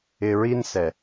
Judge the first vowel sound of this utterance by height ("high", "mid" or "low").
high